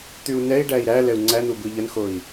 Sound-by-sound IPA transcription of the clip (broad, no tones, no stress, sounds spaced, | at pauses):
t̪ y u̯ n ɛ i̯ ɖ æ i̯ ɾ æ l ɛ u̯ ŋ͡ǀ æ n̪ u b ɯ ʎ ə n x o i̯